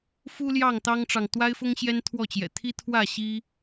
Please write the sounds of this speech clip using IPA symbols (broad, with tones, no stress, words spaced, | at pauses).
fu˦ljɑ˥˨ŋ t̪ɑ˦ŋʈ͡ʂɑ˨ŋ t̪wa˦ɪ̯fʊ˦ŋ ɕjɛ˦nt̪ʰwɔ˥˨t͡ɕjɛ̰˨˩ t̪ʰi˦t̪ʰwä˥˨ ɕi˦